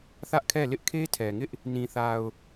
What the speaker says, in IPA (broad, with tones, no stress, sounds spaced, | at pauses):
θ ä˦ ʔ kʰ ɛ˦˨ l ɪ˦ ʔ kʰ e˦ tʰ ɛ˨ ŋ ɪ˦ ʔ | n ĩ˨ θ a˨ ʊ̯